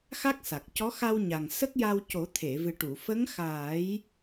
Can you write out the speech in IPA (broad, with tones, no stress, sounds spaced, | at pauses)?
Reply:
x a˦˥ k̚ s a˨˩ k̚ c ɔ˧˥ x a˧ w ɲ a˨˩ ŋ s ə˦˥ k̚ j a˧ w c o˨˩˦ t̪ʰ e˨˩˨ v ɨ˨˩ ʈ u˨˩˨ f ə˧˥ ŋ x aː˨˩˦ j